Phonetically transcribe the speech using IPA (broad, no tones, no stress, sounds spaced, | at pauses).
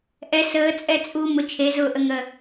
ʔ ɛ s əː t͡sʼ ɛ t͡sʼ u m ʊ t͡ʃʰ e z ʊː ʔ ə ŋ ə